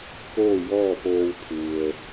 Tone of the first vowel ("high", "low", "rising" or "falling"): falling